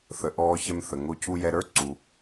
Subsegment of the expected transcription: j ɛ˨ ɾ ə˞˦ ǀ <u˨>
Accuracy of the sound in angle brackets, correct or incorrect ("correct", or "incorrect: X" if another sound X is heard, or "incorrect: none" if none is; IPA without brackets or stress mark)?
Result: incorrect: u˩